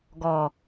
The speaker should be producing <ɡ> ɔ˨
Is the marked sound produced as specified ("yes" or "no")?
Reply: yes